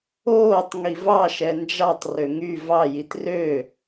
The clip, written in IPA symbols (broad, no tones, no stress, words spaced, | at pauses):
oːtˤ ŋivɑ ʃɛnd͡ʒɑtˤ røŋy vɑ jitrø